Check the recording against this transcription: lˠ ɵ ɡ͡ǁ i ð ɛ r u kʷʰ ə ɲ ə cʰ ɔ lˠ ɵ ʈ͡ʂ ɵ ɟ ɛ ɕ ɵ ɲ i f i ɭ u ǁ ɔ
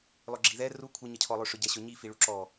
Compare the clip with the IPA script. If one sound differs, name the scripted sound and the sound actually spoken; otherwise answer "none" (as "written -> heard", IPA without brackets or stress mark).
ʈ͡ʂ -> ʂ